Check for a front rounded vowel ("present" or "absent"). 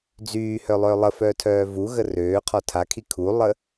present